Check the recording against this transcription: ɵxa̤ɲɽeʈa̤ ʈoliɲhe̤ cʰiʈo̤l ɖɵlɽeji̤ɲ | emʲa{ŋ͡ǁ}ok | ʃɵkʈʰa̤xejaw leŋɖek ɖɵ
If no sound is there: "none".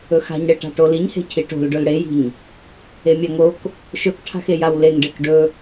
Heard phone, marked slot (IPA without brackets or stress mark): ŋ